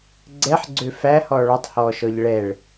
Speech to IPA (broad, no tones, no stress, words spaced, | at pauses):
ɡ͡ǀɛħɡ͡ǀø fæhɔ ɭɔtˤhɔːʃɔʎ ɭɛɭ